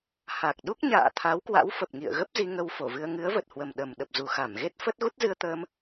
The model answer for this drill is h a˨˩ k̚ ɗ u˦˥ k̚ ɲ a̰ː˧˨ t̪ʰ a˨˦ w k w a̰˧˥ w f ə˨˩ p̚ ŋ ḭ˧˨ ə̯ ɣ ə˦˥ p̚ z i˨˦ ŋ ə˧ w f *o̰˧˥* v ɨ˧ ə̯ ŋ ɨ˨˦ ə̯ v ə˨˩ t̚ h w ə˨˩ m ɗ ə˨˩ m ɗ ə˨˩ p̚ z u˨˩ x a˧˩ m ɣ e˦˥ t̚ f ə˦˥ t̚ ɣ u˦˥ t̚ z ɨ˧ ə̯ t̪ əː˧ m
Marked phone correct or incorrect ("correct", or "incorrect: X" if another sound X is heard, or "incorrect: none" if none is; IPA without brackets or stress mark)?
incorrect: o˧˩